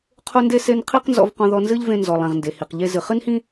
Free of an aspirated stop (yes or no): no